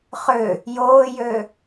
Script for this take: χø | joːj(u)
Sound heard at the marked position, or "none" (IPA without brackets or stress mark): ø